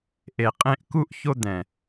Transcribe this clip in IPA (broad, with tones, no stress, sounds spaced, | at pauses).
ʔ e˨ qʼ ẽ˧ ʔ k u˦ ʔ ç o˧ d̪ ɛ̃˨